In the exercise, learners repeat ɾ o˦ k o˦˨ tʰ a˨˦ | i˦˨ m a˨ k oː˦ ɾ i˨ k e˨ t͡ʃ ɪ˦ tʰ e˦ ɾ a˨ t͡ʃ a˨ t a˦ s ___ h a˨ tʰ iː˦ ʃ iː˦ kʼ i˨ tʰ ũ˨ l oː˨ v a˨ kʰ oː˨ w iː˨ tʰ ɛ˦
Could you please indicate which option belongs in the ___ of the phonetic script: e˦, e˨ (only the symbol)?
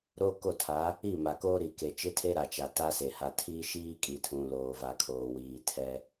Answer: e˨